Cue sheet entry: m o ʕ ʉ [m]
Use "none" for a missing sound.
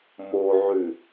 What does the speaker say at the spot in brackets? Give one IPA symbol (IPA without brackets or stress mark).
none